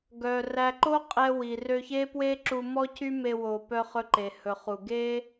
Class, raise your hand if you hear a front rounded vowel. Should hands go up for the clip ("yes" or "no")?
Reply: yes